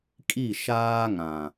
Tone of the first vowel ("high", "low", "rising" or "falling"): falling